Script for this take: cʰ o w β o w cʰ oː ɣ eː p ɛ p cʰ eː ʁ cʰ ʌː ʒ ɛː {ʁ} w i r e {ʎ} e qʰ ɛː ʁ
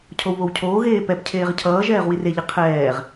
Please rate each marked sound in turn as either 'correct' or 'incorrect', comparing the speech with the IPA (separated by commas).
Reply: correct, correct